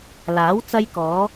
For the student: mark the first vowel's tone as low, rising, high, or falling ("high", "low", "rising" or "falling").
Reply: rising